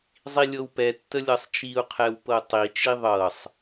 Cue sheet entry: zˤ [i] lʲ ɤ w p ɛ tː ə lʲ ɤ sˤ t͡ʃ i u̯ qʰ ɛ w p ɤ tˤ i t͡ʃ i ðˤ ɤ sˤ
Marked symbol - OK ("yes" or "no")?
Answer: yes